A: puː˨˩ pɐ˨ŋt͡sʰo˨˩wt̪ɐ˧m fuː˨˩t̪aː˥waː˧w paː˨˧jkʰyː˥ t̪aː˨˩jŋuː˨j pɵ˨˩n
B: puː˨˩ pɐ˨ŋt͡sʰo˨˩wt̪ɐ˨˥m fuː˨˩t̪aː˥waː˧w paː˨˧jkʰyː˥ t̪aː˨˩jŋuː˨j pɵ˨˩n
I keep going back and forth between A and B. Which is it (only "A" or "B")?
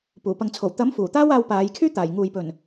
B